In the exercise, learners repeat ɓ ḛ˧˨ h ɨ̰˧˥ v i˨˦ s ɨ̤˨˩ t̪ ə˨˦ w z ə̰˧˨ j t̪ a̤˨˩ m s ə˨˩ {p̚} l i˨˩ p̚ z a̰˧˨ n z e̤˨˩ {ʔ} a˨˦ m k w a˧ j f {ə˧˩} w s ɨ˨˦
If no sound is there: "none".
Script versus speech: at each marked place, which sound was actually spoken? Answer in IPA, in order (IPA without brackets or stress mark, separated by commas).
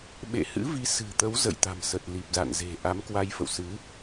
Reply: t̚, ʔ, ə̰˧˨